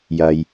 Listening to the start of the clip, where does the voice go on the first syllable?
low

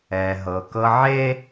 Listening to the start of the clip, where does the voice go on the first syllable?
low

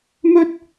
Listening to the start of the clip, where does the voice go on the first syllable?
high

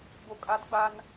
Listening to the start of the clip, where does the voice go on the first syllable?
low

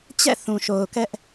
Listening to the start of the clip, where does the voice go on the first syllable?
falling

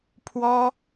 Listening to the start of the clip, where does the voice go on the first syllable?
high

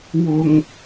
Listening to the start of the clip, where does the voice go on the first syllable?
low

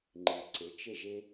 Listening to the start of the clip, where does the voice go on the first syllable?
low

